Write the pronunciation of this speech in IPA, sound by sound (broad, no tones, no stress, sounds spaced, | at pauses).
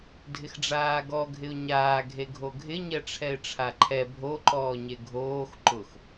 dʱ ɪ x ɖ͡ʐ aː ɡ ɔ ɡʱ ɪ ʊ̯ ɲ aː ɡʱ e ɡʱ o ɡʱ ɪ ɲ ɛ ʈ͡ʂʰ ɛ ɪ̯ ʈ͡ʂʰ a ǃʰ ɛ bʱ o ǃ ɔː ɲ e ɡʱ oː x ǃ ʊ x